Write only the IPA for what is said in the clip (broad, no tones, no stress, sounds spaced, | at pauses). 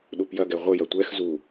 ɗ u p j ɐ ɡ ɛ ʁʷ ɘ j ɐ tʷ ɛ x z u